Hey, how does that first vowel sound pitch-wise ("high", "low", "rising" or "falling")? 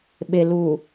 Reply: low